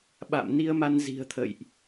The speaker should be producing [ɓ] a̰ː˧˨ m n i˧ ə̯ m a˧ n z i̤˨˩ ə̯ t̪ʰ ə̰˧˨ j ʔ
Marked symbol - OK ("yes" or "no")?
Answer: yes